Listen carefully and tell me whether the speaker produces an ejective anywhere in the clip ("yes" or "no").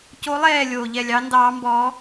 no